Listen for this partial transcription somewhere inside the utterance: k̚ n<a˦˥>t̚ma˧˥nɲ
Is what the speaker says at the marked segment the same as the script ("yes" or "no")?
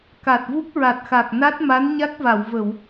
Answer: yes